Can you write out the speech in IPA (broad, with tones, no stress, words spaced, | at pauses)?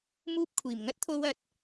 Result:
muː˧p̚kʷʰiː˨˩mŋɐ˥t̚t̪ʰo˧w ɐ˨t̚